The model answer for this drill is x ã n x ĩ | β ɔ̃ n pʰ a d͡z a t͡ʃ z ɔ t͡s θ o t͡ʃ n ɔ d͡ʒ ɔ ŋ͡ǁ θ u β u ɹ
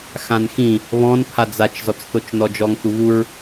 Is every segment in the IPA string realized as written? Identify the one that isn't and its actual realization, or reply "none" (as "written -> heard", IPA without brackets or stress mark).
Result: ŋ͡ǁ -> ŋ